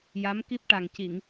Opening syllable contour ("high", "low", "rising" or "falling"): rising